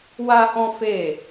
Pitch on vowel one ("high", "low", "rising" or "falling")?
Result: high